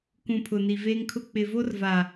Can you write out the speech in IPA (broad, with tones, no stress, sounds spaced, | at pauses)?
k ũ˨ pʰ ʊ˨ n i˨ v eː˦ ŋ kʰ ʊ˦ k͡p ɪ˨ v o˦ r v a˨